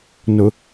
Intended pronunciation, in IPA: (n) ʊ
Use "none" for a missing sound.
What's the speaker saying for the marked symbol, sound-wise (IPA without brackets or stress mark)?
n